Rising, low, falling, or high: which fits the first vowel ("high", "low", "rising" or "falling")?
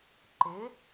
rising